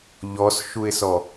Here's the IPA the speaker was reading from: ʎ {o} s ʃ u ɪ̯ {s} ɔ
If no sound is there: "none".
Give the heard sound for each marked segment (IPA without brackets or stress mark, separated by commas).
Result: ɔ, s